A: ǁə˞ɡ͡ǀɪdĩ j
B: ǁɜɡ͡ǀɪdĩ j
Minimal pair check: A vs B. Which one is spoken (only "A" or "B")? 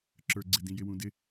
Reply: A